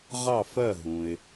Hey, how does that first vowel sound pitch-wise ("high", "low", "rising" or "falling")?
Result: falling